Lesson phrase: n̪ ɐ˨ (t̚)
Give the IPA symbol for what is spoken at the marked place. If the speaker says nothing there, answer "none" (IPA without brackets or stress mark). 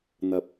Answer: p̚